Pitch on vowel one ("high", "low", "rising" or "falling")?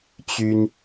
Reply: high